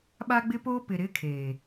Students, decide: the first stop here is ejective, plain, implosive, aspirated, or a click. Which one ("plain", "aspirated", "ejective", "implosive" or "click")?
implosive